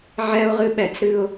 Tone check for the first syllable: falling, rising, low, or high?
high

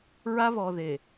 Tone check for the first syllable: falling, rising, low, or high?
high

